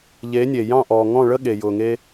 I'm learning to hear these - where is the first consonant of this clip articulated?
palate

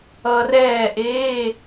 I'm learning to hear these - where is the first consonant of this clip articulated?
tongue tip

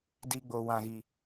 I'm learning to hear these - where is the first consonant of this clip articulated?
tongue tip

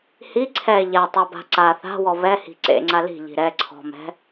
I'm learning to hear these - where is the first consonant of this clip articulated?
throat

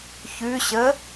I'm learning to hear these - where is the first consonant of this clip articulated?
palate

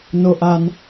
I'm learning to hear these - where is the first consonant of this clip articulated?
tongue tip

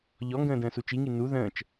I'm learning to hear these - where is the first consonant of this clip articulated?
palate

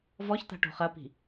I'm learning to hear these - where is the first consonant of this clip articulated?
lips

